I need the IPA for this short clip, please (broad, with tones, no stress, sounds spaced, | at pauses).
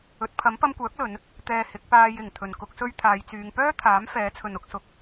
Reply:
ɵ˨˥ t̚ pʰ ɐ˨˥ m p ɐ˧ m kʷ œː˨˥ k̚ l ɵ˨˧ n | t̪ ɛː˧ h ɪ˨˥ k̚ p aː˧ j ɪ˨˩ ŋ t̪ʰ ɵ˨˩ n k ʊ˧ k̚ s ɵ˧ ɥ t̪ʰ aː˨˧ j t͡s yː˨˧ ŋ p œː˥ t̪ʰ aː˨˥ m f ɛː˨˥ t͡sʰ ɵ˨ n ʊ˧ k̚ s ʊ˨ k̚